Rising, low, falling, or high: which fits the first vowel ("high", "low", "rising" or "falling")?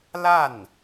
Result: falling